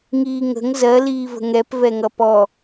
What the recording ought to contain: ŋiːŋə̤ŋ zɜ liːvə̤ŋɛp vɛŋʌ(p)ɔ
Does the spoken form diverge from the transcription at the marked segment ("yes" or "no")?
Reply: no